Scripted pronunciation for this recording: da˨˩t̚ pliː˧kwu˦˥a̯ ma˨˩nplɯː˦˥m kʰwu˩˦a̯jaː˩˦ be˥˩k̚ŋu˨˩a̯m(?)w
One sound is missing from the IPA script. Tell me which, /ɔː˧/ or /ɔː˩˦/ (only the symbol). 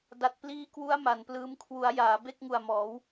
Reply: ɔː˩˦